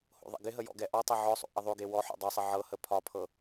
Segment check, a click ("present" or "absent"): absent